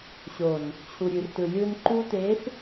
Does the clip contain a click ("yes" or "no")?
yes